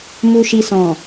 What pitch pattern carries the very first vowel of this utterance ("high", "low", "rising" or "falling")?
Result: low